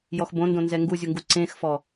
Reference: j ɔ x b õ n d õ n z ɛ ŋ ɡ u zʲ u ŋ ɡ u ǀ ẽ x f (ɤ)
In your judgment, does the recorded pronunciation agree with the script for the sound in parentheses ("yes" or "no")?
no